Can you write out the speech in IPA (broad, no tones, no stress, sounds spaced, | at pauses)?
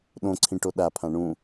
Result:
ɗ õ ǀʰ ĩ ʈ o ɗ a pʰ ã ɳ ũ